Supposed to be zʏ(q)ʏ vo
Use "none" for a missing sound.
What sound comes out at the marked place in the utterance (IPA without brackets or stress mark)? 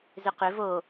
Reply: q